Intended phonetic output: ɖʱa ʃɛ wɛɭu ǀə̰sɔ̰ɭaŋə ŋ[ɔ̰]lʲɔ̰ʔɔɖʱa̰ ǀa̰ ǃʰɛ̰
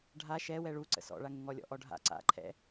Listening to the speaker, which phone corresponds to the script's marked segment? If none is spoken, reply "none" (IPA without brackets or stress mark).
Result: ɔ